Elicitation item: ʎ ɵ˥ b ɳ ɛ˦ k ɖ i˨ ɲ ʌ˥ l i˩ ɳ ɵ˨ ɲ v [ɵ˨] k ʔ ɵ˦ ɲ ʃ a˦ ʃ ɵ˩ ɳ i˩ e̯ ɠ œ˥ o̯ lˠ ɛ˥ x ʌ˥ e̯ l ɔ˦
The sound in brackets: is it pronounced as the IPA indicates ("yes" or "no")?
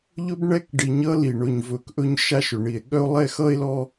yes